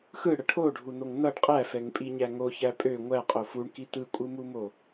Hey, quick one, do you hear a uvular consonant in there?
yes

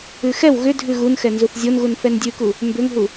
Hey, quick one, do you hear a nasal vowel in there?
no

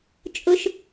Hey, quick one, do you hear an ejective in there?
yes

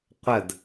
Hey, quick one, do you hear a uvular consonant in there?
yes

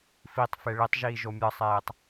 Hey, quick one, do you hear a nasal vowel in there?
no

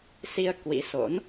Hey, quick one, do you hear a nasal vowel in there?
no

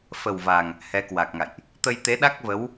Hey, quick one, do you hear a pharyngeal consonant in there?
no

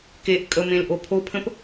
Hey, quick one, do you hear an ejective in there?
yes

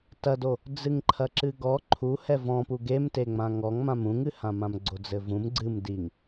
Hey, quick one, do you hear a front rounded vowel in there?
no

